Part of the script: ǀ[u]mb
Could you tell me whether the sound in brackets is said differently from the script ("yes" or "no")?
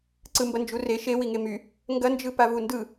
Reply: yes